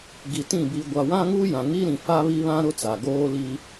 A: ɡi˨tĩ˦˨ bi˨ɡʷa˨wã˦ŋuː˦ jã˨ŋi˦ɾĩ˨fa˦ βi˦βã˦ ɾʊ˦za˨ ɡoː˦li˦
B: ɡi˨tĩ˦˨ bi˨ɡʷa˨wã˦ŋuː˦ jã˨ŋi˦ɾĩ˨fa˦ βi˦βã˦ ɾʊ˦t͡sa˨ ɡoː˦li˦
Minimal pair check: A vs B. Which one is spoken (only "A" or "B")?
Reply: B